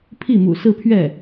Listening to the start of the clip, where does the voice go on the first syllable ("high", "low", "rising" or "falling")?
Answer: falling